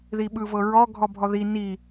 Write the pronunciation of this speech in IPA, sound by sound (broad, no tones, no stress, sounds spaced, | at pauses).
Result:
ð i ɓ ɯ v ɤ ɹ ɔ ɡʱ ɔ bʱ ɔ ð i n i